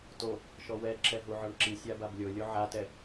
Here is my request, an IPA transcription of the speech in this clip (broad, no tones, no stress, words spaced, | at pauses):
to | ʃɔwɛ ǁɛɦuʕɔɳǁi sʲabablʲo lʲoʕatɛ